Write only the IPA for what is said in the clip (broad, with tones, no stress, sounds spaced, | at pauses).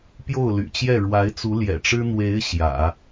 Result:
p j o˥˩ ʊ̯ l y̰˨˩ t͡ɕ j ɛ˥˩ ɻ w a˧˥ ɪ̯ t͡s u˧˥ l j ɛ̰˨˩ ʈ͡ʂ ɻ̩˥ n̪ w e˧˥ ɪ̯ ɕ j ä̰˨˩˦